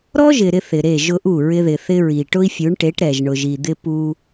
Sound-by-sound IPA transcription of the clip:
ɾ ɔ˦ ʒ ɪ˨ ɾ ɪ˦ θ ɪ˨ ɾ e˦˨ ʒ ʊ˦ ʔ u˦˨ ɹ ɪ˦ ð ɪ˨ θ ɪ˦ ɹ i˨ ʈ ʊ˦ i̯ fʲ u˨˦ ɳ ʈ e˨˦ ʈ ɾ ɛ˨ ʒ ɳ ʊ˨ ʒ i˨ d̪ ɪ˦ p u˦

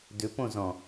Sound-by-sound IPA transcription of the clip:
d ʏ p õ z ɔ̃

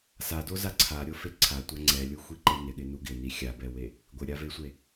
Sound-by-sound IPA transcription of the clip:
s a d o z a ǀʰ a ɾʲ o f e ǀʰ a tʷ a ŋ͡ǀ ɛ lʲ u xʷ i ǃ ɪ n ɪ ɠ ɪ n u ɡ ɪ n i xʲ a b ɛ w e | ɡʷ ɪ ɾʲ a v e sʷ e

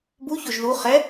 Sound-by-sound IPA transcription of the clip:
b u ç o ʒ ð u χ ɛ

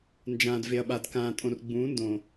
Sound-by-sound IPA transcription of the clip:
n d͡ʒ ãː˨ d v e˨ ɐ̯ ɓ a˨ d k ãː˨ tʼ õ˨ r ɡ͡b ũː˨˦ n d õ˨

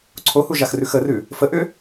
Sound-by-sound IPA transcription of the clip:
ǀʰ o h u ʒ a x r ʉ x ə r ʉ | f ə ʔ ʏ

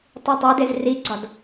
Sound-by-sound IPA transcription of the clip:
tˤ u tˤ e d e z r i ɡ͡ǀ ɒ d

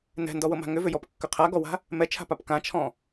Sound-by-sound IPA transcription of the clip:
n ɛ̤ n d ɔ w ɤ m a̤ ŋ ʏ v ʏ j ɔ p kː ʏ qʰ a ɡ ɔ w a̤ | m ɛ t͡ʃʰ a̤ p a p k ã t͡ʃʰ ɔ̃

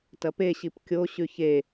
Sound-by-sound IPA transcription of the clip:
t ɐ p e ɕ i p kʲ o ɕ ʉ ç e

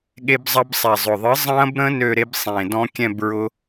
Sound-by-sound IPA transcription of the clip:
ɠ e˦˥ b zˤ ɐ˦˥ b sˤ ɛ˨˩ zˤ ʊ˨˩ ðˤ ɨ˨˥ zˤ ɐ̃˦˥ b ɾ ə̃˦˥ n ø˥˧ ɾ e˦˥ b sˤ ẽ˨˩ d ɔ̃˦˥ kʲ ɛ̃˥˧ b ɹ ʊ˦˥

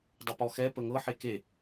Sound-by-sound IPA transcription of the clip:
dˤ ə p ɔ x ɛ p ə ŋ ɤ ħ e k e

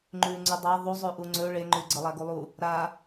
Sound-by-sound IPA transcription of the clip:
ŋ͡ǃ ʉ ŋ͡ǀ ʉ dˤ a ðˤ u zˤ ʉ ʔ u ŋ͡ǀ ɵ ɭ e ŋ͡ǃ ʉ ɡ͡ǀ ə lˠ a ɡ u lˠ u | ɾ a

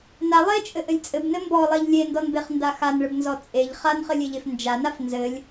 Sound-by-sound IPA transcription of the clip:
n a lˠ e t͡ʃʼ ɘ ʔ ɘ lʲ t͡sʼ ɘ b n ɘ m b ɔ lˠ e ʎ lʲ e n d ɔ n b e χ n d a x a n ɭ ɘ b n z ɔ t͡sʼ e ʎ χ a n χ ɘ lʲ e ʎ e f n d͡ʒ a n a f n z ɘ lʲ

